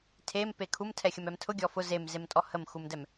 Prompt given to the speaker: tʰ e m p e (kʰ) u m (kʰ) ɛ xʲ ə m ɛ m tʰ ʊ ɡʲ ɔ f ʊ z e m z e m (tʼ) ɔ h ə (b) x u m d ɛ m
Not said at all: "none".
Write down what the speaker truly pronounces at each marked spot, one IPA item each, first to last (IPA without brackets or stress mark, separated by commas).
kʰ, tʰ, tʼ, m